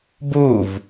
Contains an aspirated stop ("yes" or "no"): no